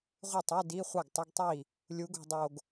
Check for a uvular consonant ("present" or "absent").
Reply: present